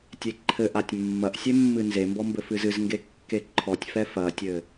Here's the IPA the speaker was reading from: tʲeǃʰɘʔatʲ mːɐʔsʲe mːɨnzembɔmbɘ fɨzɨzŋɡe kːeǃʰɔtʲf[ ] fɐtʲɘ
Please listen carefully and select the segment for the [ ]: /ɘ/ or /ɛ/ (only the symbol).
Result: ɛ